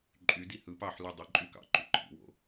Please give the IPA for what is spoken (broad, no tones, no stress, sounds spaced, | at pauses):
ǃʼ y d i h ɯ p ɑ ħ l y dˤ ɯ ǃʼ y k ɑ̰ ǃ y ǃʰ ḭ w o̰